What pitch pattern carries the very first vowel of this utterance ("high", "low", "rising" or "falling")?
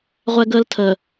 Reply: high